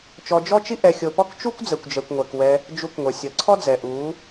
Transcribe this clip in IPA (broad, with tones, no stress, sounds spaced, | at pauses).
t͡ʃ ɔ˧ d͡ʒ ɔ˦ t͡ʃ i˦ ʔ ɛ˧ xʲ o˧ p ɔ˦ k t͡ʃ u˦ kʷ d͡z ɛ˨ kʷ d͡ʒ ɛ˨ kʷ ŋʷ ɛ˨ k w ɛ˧ | d͡ʒ u˧ k ŋʷ ɛ˨ sʲ ʌ˨˦ ǀʰ ɔ˦ d͡z ɛ˨ ʔ u˨˦